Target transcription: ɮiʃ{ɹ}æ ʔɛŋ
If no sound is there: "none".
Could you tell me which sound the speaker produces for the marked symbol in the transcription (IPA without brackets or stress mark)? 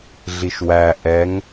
w